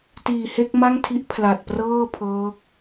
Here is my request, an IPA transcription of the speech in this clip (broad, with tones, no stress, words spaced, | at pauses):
tiː˨˩ he˥˩k̚ ma˥˩ŋtʰi˦˥ʔ pʰla˨˩t̚prɤː˥˩ pʰɤː˦˥k̚